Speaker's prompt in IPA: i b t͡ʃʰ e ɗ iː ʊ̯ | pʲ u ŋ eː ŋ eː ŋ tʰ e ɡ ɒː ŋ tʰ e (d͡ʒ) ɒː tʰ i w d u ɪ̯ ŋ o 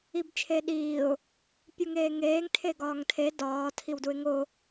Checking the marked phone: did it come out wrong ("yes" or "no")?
yes